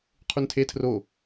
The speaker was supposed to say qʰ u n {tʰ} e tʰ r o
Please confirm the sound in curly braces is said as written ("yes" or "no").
yes